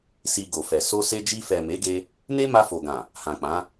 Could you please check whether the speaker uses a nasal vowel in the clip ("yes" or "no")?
yes